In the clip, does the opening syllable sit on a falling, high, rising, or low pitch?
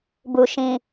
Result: low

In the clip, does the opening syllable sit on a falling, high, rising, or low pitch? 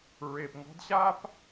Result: low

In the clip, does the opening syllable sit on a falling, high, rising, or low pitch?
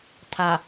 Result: low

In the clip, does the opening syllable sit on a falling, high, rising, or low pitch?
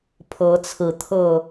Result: rising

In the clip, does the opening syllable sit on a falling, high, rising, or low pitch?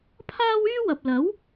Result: high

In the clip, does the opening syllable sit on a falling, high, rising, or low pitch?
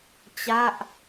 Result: falling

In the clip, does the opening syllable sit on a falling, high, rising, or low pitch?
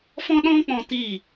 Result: high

